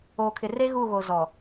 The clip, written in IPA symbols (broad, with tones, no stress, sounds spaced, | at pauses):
oː˨ kʰ ɪ˨ r e˦ ɣ u˦˨ ɣ o˨ z ɔ˨